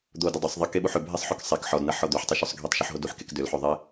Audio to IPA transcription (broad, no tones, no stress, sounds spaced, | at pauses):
d̪ o d ʏ dˤ ʏ sˤ ðˤ ɐ k e ɓ u ħ ʏ bʱ e sˤ ħ o k sˤ e k ħ ɔ d n ɐ ħ ɔ d̪ ø ħ tˤ ø ʃ o sˤ ɡʱ e tˤ ʃ o ħ ɦ o d u ħ k e k d ʏ l ħ ø ðˤ e